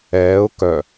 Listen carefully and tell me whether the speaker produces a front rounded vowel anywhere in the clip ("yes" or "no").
yes